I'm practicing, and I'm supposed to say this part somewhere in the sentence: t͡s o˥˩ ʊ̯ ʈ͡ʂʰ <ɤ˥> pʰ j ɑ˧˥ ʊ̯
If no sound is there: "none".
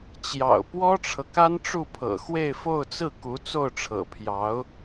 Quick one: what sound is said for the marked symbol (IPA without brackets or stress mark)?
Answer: ɤ̰˨˩